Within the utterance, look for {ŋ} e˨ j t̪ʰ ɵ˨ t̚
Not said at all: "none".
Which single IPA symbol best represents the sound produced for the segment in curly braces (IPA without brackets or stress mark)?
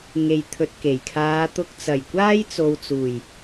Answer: ŋ